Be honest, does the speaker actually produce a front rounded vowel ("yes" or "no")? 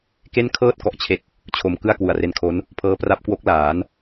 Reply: no